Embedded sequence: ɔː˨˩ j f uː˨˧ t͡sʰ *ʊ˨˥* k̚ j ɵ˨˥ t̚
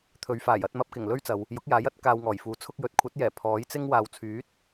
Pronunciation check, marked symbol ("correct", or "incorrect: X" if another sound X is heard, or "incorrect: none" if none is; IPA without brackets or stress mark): incorrect: ʊ˧